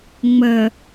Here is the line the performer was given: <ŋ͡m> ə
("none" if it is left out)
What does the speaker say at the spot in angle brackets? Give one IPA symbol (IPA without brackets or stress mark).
ŋ͡m